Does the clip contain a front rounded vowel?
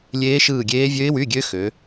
yes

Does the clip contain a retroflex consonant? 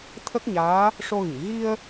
yes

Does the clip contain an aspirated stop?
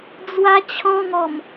yes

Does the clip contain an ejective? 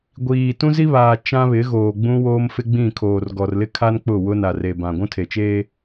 no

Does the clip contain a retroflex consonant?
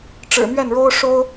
yes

